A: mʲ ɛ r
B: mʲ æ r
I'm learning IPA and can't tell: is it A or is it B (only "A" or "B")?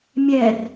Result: A